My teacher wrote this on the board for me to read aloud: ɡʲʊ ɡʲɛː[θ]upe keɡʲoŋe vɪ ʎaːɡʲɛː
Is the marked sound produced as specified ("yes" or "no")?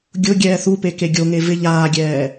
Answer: yes